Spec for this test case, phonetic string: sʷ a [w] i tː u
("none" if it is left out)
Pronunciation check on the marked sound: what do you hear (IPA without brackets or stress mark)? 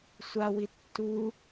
w